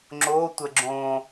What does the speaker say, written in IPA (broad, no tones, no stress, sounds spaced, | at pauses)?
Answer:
ŋ͡ǁ o tʷ ə ɡ͡ǁ õ